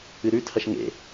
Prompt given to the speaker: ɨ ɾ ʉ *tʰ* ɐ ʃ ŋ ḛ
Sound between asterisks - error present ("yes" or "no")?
no